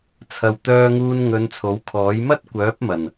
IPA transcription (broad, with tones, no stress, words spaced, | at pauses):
t͡sʰɐ˨w t̪œː˧ŋuː˧n ŋɵ˨˧n t͡sʰo˨˥wkʰɔː˨˥j mɐ˥t̚kʷœː˨˥p̚mɐ˨˩n